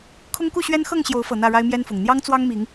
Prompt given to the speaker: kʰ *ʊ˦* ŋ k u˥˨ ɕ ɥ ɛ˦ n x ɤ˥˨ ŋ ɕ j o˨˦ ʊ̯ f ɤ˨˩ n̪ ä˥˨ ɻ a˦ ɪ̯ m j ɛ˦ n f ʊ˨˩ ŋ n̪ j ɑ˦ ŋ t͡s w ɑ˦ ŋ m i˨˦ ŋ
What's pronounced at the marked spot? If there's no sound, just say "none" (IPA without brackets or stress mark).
ʊ˦